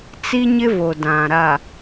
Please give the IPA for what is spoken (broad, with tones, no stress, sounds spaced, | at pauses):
t͡s i˦ ɲ ɪ˦ v o˨ d ã˨ ɾ a˨